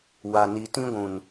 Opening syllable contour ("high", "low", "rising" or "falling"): low